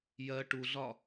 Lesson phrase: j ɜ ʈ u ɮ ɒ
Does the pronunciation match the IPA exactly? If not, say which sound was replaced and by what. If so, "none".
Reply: none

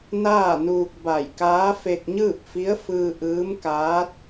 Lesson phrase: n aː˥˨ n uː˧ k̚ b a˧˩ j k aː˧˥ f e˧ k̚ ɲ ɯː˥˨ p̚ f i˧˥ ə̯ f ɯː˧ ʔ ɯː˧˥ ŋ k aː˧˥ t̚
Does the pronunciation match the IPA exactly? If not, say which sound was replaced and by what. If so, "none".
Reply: ŋ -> m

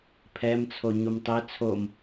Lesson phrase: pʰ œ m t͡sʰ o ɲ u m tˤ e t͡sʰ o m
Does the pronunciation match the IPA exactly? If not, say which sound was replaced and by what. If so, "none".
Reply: œ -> ɛ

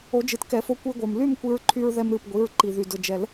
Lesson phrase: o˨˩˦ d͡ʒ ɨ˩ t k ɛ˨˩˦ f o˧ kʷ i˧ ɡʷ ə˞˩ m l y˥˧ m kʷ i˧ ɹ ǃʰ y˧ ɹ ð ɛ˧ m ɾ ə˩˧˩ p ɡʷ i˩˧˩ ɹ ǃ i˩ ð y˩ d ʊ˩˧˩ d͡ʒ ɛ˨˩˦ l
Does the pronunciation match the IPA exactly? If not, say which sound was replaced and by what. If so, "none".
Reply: ə˩˧˩ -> ɨ˩˧˩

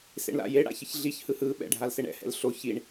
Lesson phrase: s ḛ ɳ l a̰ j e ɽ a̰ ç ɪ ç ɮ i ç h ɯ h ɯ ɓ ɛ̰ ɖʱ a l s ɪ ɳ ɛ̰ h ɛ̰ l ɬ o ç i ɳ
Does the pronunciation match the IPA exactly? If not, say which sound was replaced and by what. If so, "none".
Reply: none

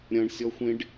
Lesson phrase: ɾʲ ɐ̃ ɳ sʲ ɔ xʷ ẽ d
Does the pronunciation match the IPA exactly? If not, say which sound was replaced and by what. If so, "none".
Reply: d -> ɖ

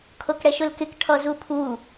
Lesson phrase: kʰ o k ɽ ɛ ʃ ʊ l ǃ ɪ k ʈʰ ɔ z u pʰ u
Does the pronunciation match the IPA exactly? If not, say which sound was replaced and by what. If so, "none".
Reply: ǃ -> k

